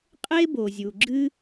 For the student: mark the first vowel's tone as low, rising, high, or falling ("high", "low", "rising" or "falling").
high